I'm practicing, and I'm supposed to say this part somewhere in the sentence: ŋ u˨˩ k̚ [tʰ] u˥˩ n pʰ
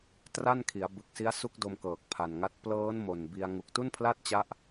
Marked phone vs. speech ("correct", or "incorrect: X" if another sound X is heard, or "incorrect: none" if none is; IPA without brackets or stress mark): incorrect: t